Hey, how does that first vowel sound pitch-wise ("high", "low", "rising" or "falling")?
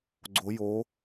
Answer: rising